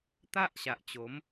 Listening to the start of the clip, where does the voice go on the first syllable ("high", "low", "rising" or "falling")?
high